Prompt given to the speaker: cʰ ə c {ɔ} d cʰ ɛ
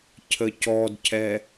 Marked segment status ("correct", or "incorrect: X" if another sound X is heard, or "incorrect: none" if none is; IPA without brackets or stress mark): correct